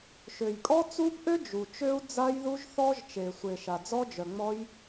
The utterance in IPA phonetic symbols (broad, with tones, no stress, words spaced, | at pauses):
ʃø˨jkʼɔ˦˥t͡su˦˥bʔø˦˥ d͡ʒu˨ t͡ʃø˦˥u̯d͡za˦˥jðu˦˥ʒθɔ˦˥ʒ t͡ʃe˨sʷe˨ʃa˨ d͡zɔ˦˥d͡ʒœ˨ŋ͡mɔ˦˥j